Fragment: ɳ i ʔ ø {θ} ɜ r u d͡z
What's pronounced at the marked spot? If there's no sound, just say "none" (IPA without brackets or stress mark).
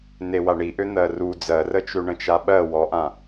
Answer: n̪